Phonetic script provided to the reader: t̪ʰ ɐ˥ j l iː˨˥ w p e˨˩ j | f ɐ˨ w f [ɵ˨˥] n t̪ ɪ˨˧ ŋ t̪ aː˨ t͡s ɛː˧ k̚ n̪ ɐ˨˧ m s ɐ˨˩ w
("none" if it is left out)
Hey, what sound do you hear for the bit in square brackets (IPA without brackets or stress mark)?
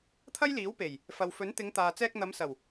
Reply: ɵ˨˥